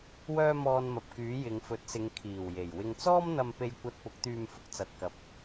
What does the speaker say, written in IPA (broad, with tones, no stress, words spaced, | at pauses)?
wœː˥mɔː˧nmɐ˨p̚kyː˨˥ jɪ˨˧ŋ fɵ˨˥t̚sɪ˨˧ŋkʰiː˨˩w je˨˩jwɪ˧ŋ t͡sɔː˥mn̪ɐ˧m pe˧jkʷɐ˧t̚pʊ˨˥k̚ t̪yː˧mfʊ˥k̚t͡sɐ˨t̚kɐ˨˥p̚